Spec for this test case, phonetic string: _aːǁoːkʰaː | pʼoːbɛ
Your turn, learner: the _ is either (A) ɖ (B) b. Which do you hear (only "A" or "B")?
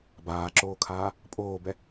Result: B